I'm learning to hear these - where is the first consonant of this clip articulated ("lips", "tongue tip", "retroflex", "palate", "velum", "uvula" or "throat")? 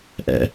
throat